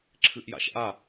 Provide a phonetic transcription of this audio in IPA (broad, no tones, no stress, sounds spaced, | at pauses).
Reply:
ǁʰ ɨ ʔ j a̰ ʃ ʔ a